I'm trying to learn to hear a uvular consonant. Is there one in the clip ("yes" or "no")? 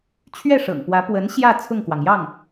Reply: no